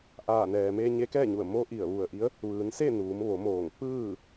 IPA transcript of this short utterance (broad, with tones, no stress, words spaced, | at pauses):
ʔaː˧˩nɛː˩me˧ ɲe˧˥kɛː˥˨ɲu˧˩ə̯mo˧˥ ʔi˧˩ə̯ʋu˧˩ə̯ʔi˧˥ə̯ | ʋɯː˩˧nse˥˨ nuː˩˧mʋo˩˧moː˧˩ŋ pɯː˥˨